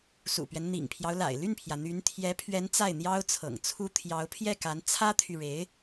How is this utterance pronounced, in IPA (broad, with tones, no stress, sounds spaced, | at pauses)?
s ṵ˨˩ p ɥ ɛ˦ n n̪ ḭ˨˩ ŋ pʰ j ɑ˦ ʊ̯ l a̰˨˩ ɪ̯ l y˥˩ n pʰ j ä˩ n̪ y˧˥ n t̪ʰ j ɛ˧˥ pʰ ɥ ɛ˧˥ n t͡s a˥˩ ɪ̯ n̪ j ɑ˥ ʊ̯ t͡sʰ ɤ̰˨˩ ŋ t͡sʰ u˥ t̪ʰ j ɑ˧˥ ʊ̯ pʰ j ɛ˥˩ k a˧˥ n t͡sʰ ä˥ t̪ʰ y˨ ɻ e˧˥ ɪ̯